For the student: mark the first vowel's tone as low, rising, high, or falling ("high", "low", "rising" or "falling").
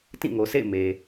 falling